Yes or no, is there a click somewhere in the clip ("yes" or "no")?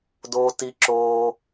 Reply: yes